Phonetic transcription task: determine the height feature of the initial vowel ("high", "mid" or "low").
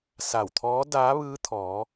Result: low